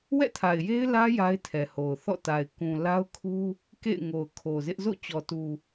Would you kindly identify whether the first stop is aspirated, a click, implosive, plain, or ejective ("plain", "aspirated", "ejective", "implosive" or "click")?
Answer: aspirated